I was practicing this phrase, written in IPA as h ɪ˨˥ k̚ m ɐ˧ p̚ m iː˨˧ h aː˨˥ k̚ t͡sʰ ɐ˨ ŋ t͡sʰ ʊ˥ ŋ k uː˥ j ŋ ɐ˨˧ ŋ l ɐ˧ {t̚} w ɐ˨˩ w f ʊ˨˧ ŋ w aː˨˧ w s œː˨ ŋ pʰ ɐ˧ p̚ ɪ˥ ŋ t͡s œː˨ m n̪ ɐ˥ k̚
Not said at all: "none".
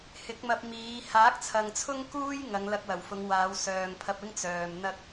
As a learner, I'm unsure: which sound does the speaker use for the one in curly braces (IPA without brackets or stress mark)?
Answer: k̚